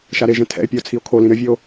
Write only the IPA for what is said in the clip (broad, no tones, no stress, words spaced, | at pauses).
ʃaɾeʒɛ̃ tʰɛ̰e̯pʲɐo̯ t͡sʰio̯kʰolĩ ɾɘvʲɘo̯